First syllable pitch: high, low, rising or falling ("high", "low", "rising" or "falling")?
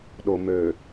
low